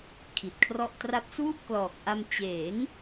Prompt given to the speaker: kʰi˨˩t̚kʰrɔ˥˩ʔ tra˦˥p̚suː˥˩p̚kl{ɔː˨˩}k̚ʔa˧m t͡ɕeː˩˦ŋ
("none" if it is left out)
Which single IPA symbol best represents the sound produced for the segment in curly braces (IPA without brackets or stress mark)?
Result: ɔː˨˩